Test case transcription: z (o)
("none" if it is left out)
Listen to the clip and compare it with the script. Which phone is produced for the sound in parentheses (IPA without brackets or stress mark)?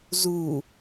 u